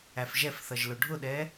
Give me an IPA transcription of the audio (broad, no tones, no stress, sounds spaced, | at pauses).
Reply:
æ f ʒ ɛ f θ ʌ ʒ l ʊ ɖʱ ʊ ɗ ɛ